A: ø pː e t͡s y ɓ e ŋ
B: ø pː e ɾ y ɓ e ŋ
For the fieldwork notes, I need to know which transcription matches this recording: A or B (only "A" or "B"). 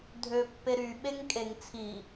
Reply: B